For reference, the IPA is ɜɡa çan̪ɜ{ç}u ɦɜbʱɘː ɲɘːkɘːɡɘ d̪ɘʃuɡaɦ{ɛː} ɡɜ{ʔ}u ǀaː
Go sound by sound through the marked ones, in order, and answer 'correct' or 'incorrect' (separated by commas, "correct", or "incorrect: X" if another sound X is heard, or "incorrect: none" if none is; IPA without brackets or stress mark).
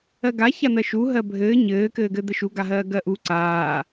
incorrect: ʃ, incorrect: ɜː, correct